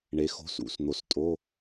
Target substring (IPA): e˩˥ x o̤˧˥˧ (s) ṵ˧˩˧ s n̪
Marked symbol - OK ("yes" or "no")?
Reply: yes